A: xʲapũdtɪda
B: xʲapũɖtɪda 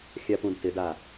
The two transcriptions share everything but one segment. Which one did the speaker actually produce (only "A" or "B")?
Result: A